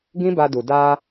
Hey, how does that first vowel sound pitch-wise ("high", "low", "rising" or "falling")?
high